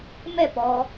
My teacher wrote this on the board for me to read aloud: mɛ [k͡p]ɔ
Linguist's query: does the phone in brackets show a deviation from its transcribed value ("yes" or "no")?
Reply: yes